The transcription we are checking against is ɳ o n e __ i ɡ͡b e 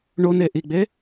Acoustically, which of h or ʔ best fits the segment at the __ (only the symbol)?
ʔ